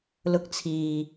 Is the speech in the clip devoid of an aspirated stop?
no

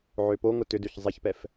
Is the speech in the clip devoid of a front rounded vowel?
no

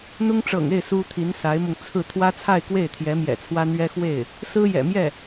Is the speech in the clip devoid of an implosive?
yes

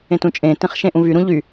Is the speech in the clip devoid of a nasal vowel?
no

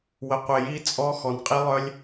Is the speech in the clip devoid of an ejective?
no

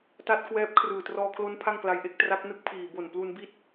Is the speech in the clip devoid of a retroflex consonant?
yes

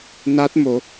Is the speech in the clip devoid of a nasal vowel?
yes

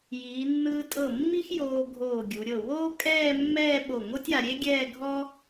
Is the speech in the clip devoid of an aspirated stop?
yes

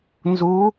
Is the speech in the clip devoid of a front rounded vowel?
yes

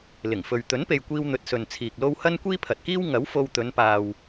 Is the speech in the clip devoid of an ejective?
yes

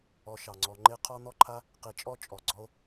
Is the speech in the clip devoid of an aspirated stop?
no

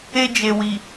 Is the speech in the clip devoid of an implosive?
yes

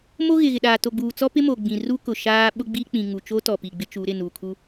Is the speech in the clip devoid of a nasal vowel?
no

